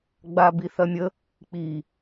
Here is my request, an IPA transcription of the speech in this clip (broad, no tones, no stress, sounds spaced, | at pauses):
ɡ͡b a b i θ ɐ mʲ ə | k͡p i